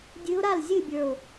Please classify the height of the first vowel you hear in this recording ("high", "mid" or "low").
high